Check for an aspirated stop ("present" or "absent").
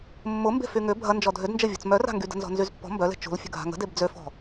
absent